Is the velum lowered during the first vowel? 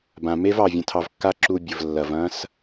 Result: yes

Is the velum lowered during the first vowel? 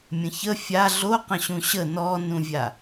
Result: yes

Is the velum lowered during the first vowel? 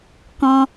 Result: yes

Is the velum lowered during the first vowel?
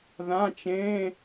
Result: yes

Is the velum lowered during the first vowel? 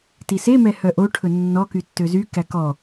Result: no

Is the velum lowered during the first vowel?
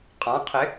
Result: yes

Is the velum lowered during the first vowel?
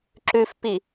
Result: no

